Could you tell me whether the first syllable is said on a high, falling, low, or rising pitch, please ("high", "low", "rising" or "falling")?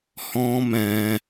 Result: high